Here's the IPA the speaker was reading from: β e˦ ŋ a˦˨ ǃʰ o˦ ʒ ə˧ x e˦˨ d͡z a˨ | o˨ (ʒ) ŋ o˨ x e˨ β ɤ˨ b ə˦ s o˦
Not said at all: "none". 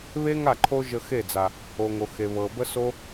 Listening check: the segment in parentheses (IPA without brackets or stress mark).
none